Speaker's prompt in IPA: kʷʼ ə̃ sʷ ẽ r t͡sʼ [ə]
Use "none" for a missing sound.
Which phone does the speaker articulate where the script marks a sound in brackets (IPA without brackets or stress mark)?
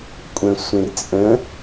ə̃